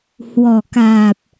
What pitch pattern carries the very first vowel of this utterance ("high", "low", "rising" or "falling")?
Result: low